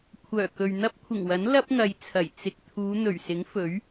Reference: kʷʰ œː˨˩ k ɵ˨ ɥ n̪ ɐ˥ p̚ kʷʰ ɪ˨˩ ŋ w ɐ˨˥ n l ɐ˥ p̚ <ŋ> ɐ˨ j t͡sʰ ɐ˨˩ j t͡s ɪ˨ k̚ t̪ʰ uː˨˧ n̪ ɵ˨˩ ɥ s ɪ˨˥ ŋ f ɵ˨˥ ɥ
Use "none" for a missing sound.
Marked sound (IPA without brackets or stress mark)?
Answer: ŋ